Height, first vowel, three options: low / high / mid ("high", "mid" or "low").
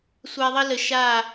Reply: low